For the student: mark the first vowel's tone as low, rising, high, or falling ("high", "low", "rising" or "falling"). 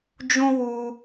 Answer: high